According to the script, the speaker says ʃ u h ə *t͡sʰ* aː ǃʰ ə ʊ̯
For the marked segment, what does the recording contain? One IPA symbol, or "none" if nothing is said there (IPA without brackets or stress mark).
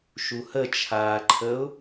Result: t͡ʃʰ